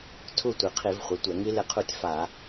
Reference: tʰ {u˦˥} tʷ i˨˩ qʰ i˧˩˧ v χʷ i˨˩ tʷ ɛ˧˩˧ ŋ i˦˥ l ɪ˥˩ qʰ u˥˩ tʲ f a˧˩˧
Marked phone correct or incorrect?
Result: incorrect